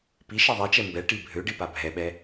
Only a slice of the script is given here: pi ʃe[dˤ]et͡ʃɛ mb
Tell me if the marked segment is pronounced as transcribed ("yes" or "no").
no